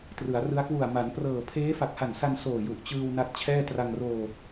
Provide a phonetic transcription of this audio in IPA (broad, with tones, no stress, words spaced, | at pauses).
trɯ˩˦a̯rɯ˦˥a̯ kwu˨˩a̯ ma˩˦nprɤː˨˩ pʰeː˦˥fa˨˩k̚ha˨˩nsa˧n soː˨˩ju˨˩ʔt͡ɕɯː˧w na˦˥t̚t͡ɕʰɛː˥˩ tra˧ŋroː˧